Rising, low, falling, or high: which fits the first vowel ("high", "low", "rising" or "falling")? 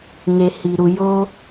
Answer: low